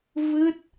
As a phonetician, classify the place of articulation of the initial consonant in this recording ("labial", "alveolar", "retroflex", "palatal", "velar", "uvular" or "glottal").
labial